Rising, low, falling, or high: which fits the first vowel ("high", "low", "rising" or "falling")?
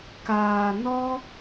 low